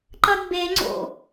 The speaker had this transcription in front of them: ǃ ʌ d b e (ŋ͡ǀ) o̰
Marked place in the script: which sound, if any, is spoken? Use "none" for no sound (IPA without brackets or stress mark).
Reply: ŋ͡ǀ